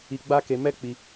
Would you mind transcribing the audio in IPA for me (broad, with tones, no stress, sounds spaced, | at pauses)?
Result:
i˧ ɡ͡b a˦ k e˧ m ɛ˦ k͡p i˧